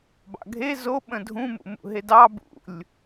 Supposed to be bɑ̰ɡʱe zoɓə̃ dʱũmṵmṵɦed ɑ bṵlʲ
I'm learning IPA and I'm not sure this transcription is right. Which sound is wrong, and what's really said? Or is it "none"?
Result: none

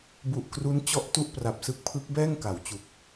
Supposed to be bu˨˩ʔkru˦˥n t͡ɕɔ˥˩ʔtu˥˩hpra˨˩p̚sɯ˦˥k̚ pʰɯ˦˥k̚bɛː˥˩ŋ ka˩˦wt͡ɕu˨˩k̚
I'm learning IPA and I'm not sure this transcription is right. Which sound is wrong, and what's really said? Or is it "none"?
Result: h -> ʔ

